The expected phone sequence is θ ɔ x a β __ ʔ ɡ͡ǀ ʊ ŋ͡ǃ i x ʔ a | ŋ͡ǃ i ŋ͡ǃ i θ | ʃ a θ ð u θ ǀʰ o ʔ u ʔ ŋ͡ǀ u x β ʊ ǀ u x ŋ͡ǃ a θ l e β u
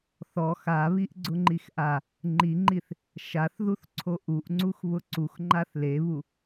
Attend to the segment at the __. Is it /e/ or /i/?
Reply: i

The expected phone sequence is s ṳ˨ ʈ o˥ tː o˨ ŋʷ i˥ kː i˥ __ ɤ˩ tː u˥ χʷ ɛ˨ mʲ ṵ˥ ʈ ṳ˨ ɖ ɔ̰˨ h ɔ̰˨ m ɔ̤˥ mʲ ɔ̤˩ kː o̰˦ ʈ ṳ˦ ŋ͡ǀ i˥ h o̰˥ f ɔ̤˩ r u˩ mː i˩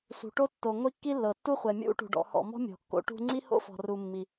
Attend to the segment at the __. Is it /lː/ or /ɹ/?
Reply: lː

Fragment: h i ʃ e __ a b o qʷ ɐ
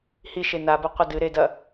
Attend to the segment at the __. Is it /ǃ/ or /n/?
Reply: n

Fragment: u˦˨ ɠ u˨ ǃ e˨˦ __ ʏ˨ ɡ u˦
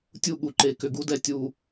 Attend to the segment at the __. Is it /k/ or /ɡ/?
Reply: k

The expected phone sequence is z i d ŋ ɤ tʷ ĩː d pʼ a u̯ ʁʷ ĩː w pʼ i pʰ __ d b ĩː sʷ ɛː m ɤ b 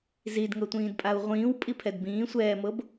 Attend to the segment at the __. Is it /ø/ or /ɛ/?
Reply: ɛ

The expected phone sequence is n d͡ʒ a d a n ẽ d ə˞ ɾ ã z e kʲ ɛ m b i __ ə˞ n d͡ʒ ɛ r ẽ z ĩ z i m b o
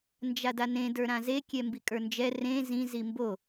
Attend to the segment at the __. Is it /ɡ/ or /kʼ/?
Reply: kʼ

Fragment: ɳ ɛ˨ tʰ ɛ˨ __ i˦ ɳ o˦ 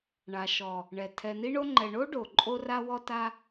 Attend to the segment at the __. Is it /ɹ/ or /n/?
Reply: n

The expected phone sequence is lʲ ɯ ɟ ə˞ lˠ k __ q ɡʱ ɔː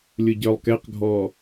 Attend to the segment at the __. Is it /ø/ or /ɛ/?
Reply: ɛ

